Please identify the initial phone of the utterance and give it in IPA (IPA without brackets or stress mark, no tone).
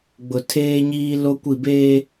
ɡ͡b